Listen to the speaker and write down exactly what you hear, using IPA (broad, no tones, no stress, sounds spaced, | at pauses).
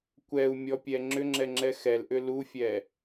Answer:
kʷ ɛ u̯ mʲ ɔ pʲ ɛ ŋ͡ǁ ʏ ŋ͡ǁ ɛ ŋ͡ǁ ɛ x ɛ l ʔ ʏ l u fʲ ɛ